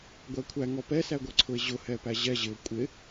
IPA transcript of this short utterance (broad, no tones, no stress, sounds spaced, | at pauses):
ɡʷ æ kʷʰ æ ŋ ɔ p ɛ s æ ɡʷ ʌ ǀʰ ʊ e̯ ʑ ʊ h ɛ p æ ʑ ɛ ʑ ɪ o̯ kʷʼ ɪ